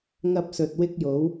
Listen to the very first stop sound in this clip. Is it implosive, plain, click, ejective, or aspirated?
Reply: plain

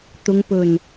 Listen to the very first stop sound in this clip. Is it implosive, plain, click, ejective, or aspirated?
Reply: plain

